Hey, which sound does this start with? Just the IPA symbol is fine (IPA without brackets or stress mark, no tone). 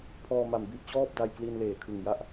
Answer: pʰ